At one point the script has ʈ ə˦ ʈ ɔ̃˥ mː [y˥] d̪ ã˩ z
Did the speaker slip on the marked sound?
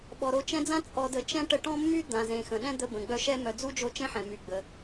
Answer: no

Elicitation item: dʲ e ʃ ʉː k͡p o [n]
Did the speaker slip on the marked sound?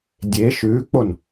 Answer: no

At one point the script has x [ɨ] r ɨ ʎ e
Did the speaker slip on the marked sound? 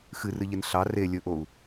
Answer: no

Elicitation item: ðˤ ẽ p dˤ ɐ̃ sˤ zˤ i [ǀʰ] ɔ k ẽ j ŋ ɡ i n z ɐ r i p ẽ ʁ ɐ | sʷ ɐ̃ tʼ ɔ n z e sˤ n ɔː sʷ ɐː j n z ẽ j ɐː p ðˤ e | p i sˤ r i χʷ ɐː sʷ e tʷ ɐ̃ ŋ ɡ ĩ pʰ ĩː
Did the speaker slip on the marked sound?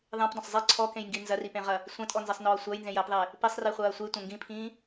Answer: no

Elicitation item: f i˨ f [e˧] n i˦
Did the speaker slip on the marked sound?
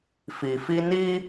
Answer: yes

